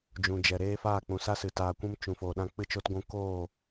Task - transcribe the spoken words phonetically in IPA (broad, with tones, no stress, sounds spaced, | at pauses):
d͡ʒ ũ˨ d͡ʒ ɛ˨ ɾ eː˦ f aː˦˨ k͡p ũ˨ s a˦ s ɨ˨ t aː˨ kʷ ũ˧ m t͡ʃ ũ˨ f oː˨ ɗ ã˧ k͡p ɨ˧ t͡ʃ o˧ t ɡʷ ũ˧ k oː˦˨